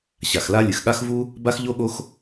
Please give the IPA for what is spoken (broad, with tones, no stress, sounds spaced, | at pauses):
ɕ a˩ x l a˥ lʲ ɨ˩ x ɠ a˥ x v u˥ | b a˥ x ʎ o˥ ɠ o˥ x